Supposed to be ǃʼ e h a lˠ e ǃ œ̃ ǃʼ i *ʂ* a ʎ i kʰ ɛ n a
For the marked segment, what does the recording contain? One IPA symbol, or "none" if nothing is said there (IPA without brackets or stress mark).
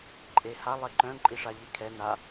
ʂ